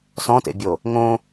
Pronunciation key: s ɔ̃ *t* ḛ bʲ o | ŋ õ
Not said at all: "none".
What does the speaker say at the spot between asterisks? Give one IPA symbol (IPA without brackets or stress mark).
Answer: t